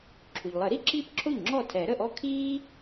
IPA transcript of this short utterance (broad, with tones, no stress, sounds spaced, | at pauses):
ǁʰ u˩ ʎ lˠ ə˨˩˦ ɾ i˥ ǁ iː˥ p ǁʰ o˥˩ ʎ ŋ͡ǁ ɔ˥˩ tʰ ɛ˨˩˦ ɾ ə˥˩ ʔ ɔ˥ kʰ iː˥